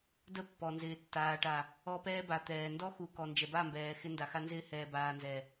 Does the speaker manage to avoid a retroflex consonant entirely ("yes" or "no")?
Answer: no